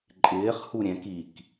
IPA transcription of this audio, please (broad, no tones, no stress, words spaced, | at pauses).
ǃʼɪːχhu ɾʲɛ̃k ik